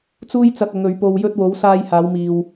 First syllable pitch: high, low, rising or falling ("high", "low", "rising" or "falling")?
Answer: high